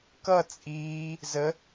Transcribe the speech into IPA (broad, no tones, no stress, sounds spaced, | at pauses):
k ʌ t͡sʼ iː | z ə